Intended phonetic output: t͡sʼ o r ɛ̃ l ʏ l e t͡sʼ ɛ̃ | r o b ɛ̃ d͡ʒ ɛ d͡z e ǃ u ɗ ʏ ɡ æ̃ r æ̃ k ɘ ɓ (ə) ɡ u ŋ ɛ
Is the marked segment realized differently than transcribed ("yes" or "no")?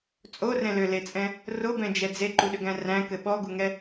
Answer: yes